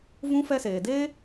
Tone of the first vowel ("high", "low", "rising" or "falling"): high